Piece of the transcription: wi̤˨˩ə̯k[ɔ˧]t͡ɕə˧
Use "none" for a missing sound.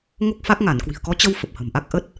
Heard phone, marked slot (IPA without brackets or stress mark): ɔ˨˦